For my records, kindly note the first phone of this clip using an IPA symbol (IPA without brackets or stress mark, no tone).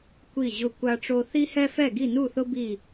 kʷ